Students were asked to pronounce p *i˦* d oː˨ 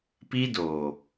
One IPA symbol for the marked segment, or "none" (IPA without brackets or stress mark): i˦